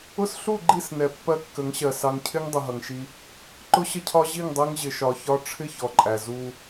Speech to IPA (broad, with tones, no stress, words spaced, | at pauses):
ʊ˦sɬu˦˨ɡ͡ǃi˦˨snɛ˨ pːɜ˦kːə˨˦ŋɕɜ˨ sɑ˨ŋcʰɪ˦ŋ dˤʊ˨ɦʌ˨ŋʃi˦ | ǃʊ˦ɕə˦cʰɒ˦ ʑi˦˨ŋdˤɜ˦ŋʑɪ˨ ʃɒ˨çɒ˦ ʈ͡ʂʰɪ˦ çɔ˨ǃʼæ˨ zu˦